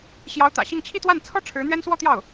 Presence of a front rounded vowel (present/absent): absent